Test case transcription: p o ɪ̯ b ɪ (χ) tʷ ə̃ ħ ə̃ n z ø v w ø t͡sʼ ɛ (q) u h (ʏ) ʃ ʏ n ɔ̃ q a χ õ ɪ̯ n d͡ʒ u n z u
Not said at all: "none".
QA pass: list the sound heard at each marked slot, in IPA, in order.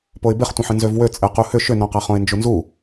χ, q, ʏ

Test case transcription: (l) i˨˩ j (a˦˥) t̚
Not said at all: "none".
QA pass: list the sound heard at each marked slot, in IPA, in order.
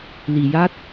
l, a˦˥

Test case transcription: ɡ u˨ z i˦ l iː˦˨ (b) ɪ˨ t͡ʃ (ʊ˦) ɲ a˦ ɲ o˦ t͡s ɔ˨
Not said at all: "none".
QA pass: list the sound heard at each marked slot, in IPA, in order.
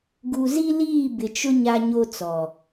b, ʊ˦

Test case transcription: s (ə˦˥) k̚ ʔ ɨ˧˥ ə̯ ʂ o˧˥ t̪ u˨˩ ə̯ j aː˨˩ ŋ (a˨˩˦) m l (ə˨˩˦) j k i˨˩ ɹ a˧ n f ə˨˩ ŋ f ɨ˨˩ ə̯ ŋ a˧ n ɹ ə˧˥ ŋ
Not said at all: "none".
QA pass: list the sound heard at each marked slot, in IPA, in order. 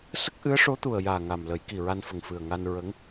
ə˦˥, a˨˩, ə˨˩˦

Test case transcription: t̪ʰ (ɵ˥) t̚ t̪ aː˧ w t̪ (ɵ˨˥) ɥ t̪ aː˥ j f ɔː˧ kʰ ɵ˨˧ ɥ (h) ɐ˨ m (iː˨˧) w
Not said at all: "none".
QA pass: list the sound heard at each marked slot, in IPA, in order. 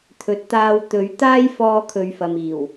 ɵ˨, ɵ˨˥, f, iː˨˩

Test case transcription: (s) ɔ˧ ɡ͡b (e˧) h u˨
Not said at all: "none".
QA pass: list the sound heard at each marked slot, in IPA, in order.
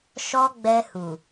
ʃ, ɛ˧

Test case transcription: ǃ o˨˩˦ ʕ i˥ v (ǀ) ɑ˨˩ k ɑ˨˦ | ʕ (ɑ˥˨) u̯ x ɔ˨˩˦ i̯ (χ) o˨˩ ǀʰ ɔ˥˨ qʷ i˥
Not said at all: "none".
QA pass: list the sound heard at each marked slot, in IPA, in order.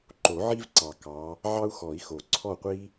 ǀ, ɑ˥, x

